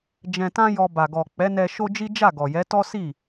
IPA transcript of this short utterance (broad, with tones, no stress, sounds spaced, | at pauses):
d͡ʒ ɛ̃˧ t ã˦ j ɔ˧ b a˨ ɡ ɔ˨ k͡p ɛ˨˦ n ɛ˧ ʃ o˦ d͡ʒ i˦ d͡ʒ a˦˨ ɡ ɔ˨ j ɛ˨˦ t ɔ˦ s i˦˨